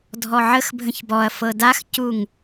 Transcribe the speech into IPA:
dʱ ɔ ʕ ə x bʱ ə̃ ç b ɔ ɐ̯ f ɤ d a x c u ŋ

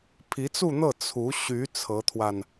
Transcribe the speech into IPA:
pʰ i˧˥ t͡s u˥˧ n̪ ɤ˥˩ t͡sʰ u˧˥ ɕ y˧˥ t͡sʰ ɤ˧˥ t̪ʰ w a˧ n

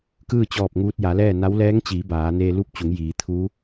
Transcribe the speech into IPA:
k ɯː˥˨ t͡ɕ ɔː˧˩ p̚ ŋ uː˧ t̚ j a˩˧ l ɛː˥˨ n a˧˥ w l ɛː˧˥ ŋ t͡ɕ iː˩˧ b aː˩˧ n eː˧ l u˥˨ p̚ t͡ɕ u˩˧ ŋ j iː˩˧ t̪ʰ u˧˥

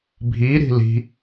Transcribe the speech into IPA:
bʱ i ɾ i̤ l i̤

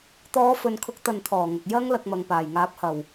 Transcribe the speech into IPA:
t̪ ɔː˨˧ f ɵ˨ n kʰ ʊ˨˥ k̚ t̪ ɐ˨ n t̪ʰ ɔː˨˩ ŋ ɐ˨ k̚ j ɐ˧ ŋ l ɐ˧ k̚ m ɐ˨ ŋ p aː˨˩ j ŋ aː˨˥ p̚ h ɐ˨˩ w

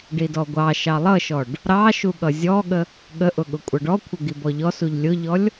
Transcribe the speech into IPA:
ɖ i d ɔ ɡʷ ɑ ʃ ɑ lˠ ʌ ʃ ɔ ɖ | ɾ ɑ ʃ u ɠ ʌ zʲ ɔ ɠ ə | ɠ ə ʔ ʊ ɠ ʊ kʷʼ ʌ ɖ ɔ kʷʰ ə ɡ i b ɔ ʎ ɔ s u ʎ lʲ ʊ ʎ ɔ lʲ

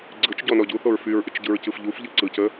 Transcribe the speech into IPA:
ɡ͡ǀ ɯ t͡ʃ ɟ ɔ n ɔ ɟ u θ o ɹ f y ɹ ʔ ɪ t͡ʃ ɟ ɯ ɹ c ɯ f ʎ u f ʎ ɯ ǀ ɯ c ə

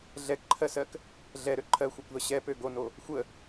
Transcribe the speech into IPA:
ɮ ɛ k ǃʰ ɜ s ɜ k | ɮ ɛ ɾ ø ǃʰ ɜ xʷ ɜ kʷ ð ə ɕ ɛ p ø ɡ o n o | xʷ ə

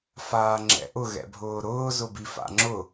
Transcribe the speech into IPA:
f aː ŋ͡ǁ ɛ̰ ʔ ʊ ɣ ɛ̰ bʱ ʊː ɾ ʊː z ʊ b i f a̰ ŋ͡ǁ ʊ

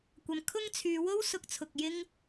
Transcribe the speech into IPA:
kʷ ɐ˨ m kʰ ʊ˥ ŋ t͡sʰ yː˨˧ w o˥ w s ʊ˨˥ k̚ t͡sʰ ʊ˨ k̚ j ɪ˥ ŋ

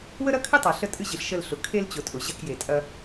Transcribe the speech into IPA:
w ə˦ ɾ ɐ˦ kʰ ɨ˦ tˤ a˨ ɬ ə˦ tʼ ɨ˦ ʑ ɨ˨ ɬ ʃ ə˦˨ l ɬ ʊ˨ kʰ e˦ l t͡ɕ ʊ˨ tʼ ʊ˨ ʑ ɐ˦˨ k j e˨ tʼ ɐ˦

